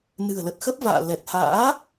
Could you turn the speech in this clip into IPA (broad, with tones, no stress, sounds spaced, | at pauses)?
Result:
n ɨ̤˨˩ ə̯ l ə˨˩ t̚ x ə˦˥ p̚ v a̰ː˧˨ l ɛ˨˩ t̚ h a̰ː˧˥